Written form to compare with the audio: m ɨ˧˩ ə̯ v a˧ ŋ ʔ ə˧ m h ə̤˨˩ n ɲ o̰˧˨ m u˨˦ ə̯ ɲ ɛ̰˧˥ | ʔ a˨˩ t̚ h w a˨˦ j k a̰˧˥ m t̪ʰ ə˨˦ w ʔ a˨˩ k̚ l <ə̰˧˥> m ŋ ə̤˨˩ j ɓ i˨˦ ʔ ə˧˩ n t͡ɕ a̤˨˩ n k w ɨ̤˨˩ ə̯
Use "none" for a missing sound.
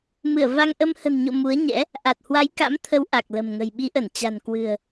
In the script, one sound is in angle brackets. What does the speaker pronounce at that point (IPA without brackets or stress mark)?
ə̤˨˩